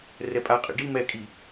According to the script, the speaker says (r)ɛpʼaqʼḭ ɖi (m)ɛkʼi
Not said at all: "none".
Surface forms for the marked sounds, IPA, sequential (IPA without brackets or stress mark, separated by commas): r, m